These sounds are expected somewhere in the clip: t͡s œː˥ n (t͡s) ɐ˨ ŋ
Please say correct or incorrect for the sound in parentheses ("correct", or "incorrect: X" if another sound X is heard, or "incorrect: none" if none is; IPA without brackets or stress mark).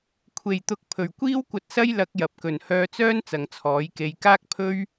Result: correct